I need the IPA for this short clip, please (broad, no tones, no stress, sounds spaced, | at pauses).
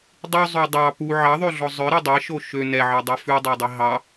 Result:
dˤ ʉ zˤ ø dˤ ɑ p u ʕ ɑ ðˤ ø ɮ ɔ zˤ œ ɾ i dˤ e ʃ o ʃ ø n ɛ ʕ ɑ dˤ œ f ʉ dˤ ɑ dˤ i ɦ ɑ